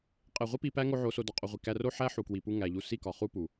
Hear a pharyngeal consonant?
yes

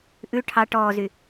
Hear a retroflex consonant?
yes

